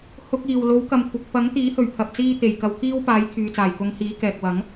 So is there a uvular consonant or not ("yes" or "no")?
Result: no